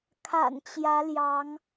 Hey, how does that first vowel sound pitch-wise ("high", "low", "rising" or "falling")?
low